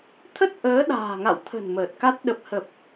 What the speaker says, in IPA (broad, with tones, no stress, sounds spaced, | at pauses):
t̪ʰ ə˦˥ t̚ ʔ əː˨˦ ɗ a̤ː˨˩ ŋ a̰˧˨ w t̪ʰ ə̤˨˩ n m əː˨˩ t̚ k a˦˥ t̚ ɗ ə˨˩ p̚ h ə˨˩ p̚